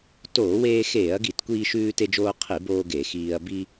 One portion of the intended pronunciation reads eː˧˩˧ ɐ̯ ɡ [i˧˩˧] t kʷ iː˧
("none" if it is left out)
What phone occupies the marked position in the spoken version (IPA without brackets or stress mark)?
i˧˩˧